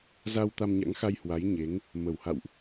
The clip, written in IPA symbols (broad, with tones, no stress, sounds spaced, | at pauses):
z a˧ w t̪ a˧ m ɲ a̰˧˥ ŋ x a˧ j h w a˨˦ j ɲ e˨˦ ŋ | m ə˧˩ w h a̰˧˨ w ʔ